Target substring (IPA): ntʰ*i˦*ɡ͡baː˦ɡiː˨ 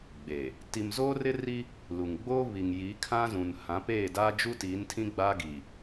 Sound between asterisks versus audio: incorrect: ĩ˦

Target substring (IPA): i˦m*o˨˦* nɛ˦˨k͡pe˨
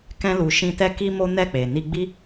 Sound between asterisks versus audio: incorrect: o˦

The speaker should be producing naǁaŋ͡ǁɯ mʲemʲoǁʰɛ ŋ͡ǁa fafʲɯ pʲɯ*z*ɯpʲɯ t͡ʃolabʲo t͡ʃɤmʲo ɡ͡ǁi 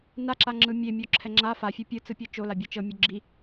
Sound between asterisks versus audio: incorrect: t͡s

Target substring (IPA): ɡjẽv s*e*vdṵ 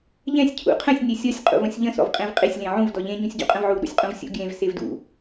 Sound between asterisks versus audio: correct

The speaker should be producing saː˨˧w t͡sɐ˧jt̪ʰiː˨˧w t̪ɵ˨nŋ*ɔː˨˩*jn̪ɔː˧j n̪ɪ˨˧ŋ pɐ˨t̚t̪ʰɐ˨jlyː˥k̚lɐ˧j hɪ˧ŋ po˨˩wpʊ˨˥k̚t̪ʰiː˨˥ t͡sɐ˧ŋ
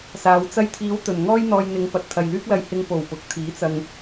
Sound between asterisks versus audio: incorrect: ɔː˥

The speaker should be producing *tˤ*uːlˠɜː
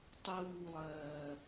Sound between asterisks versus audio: correct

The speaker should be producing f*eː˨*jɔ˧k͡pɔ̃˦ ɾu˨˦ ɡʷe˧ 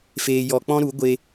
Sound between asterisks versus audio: incorrect: eː˧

